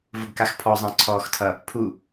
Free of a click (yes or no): no